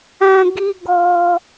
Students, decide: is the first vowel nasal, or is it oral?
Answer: nasal